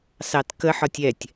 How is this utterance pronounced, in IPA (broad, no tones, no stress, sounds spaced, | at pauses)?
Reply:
s ɑ t k ə ħ ɒ tʲ ɛ tʲ